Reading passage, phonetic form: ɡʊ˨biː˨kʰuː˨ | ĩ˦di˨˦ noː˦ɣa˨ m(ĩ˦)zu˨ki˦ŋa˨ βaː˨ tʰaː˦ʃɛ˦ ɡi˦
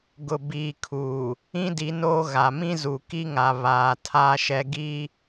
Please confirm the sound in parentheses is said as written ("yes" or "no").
yes